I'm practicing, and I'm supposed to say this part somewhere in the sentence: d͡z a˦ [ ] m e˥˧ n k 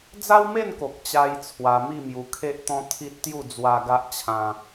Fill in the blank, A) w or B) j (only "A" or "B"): A